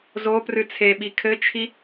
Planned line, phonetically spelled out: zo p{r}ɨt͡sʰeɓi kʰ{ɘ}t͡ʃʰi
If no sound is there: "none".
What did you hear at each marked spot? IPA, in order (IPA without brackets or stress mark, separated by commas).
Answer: r, ɘ